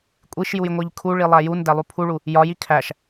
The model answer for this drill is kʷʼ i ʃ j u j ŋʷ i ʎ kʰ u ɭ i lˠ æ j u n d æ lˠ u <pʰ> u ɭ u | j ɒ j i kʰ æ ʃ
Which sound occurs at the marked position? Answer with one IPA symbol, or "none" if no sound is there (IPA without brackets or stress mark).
pʰ